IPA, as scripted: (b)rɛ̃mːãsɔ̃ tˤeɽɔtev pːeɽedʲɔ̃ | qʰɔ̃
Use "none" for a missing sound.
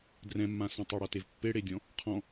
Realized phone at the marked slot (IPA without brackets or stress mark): d